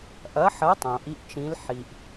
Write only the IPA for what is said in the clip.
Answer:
ʔɐ˨˦ħɐ˨˦tˤõ˩ ʔi˨˦ʔt͡ʃĩ˨˦l ħi˩ʔ

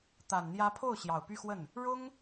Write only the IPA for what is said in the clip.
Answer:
t̪a˨˩nn̪jä˧˥pʰo˥˩ʊ̯ ɕjɑ˨˩ʊ̯py˥˧xwə˥˩n | ɻʊ˥ŋ

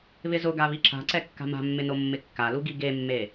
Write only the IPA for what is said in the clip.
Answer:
βɪzʊɡa βiǁa̤ǀɛ kːa̤ma̤mːɪ nomːɪkːalu ɡiɡemːe

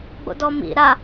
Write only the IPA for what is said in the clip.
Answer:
ɡ͡bo̰dɔmḭ ɾa

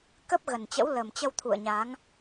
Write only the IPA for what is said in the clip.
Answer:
kə˦˥p̚ɣə˨˩nt͡ɕə̰˧˥w lə˨˩mt͡ɕə˧wt̪ʰṵ˧˨ə̯ɲa˨˦ŋ

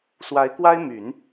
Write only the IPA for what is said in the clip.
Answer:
swa˧˥ɪ̯kwa˥ɪ̯my˨˩˦n

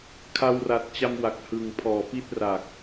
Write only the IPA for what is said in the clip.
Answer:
kʰa˧wra˨˩t̚t͡ɕa˧mwa˨˩k̚ hɯ˨˩ŋpʰɔː˨˩pi˥˩t̚ ra˨˩k̚

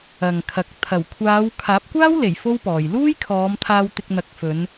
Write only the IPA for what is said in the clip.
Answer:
ɐ˨ŋkʰɐ˨k̚ t̪ʰɐ˨˩wkʷʰaː˨˧w kʰaː˨˥p̚kʷaː˥wle˨˩j fo˥wpɔː˨j luː˥jkʰɔː˨˧mt̪ʰaː˧w t̪ɪ˧k̚n̪ɐ˨˥k̚fɵ˨˧n

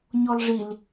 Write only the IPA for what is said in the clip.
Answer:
ɲɔlʐil

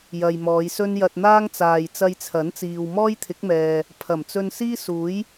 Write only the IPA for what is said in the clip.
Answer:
jɐ˨jmɔː˨˧jsɵ˥n jɐ˧t̚n̪aː˥ŋt͡saː˨j t͡sɐ˧jt͡sʰɐ˨˥nt͡siː˨w mɔː˥jt̪ʰɪ˨˥k̚mɛː˨ | pʰɐ˨˩mt͡sɵ˧n siː˥suː˨˥j

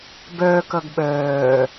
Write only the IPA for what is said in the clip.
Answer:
bœːkʌɡ ɓœː

